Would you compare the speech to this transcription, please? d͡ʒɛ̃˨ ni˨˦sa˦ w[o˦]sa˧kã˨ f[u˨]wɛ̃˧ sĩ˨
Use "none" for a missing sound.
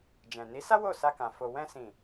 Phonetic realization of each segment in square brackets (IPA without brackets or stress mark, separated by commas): o˦˨, o˨